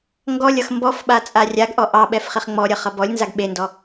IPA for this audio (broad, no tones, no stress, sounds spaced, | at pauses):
ŋ ɡ ɔ lʲ ʌ x m b ɔ f ɓ a t͡sʼ a rʲ a ɡ ʔ ɔ ʔ ɑ ɓ ɛ f χ i χ ŋ͡m ɔ ɾʲ ʌ χ ʌ b ɔ lʲ n z a ɡ ɓ e n d ɔ